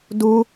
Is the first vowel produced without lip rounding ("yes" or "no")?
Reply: no